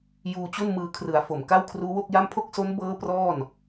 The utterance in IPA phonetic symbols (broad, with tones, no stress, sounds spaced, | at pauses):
j uː˧ t͡ɕ u˥˩ n m ɯː˧ kʰ r ɯ˩˦ a̯ f o˨˩ m k a˥˩ w kʰ r uː˦˥ w o˥˩ k̚ j a˥˩ m pʰ o˥˩ k̚ s o˦˥ n b ɤː˦˥ p r ɔː˥˩ n